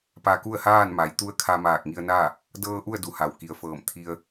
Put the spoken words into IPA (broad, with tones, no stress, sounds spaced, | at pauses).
p a˧ k u˥˨ ə̯ h aː˥˨ n m a˩ j t̪ u˧˥ ə̯ kʰ a˧ m aː˧˩ k̚ ŋ i˧ ə̯ n a˥˨ | d ɤː˧ ʔ u˥˨ ə̯ d u˩˧ h a˩ w k i˩ ə̯ f ɤː˧˩ m t̪ʰ i˧ ə̯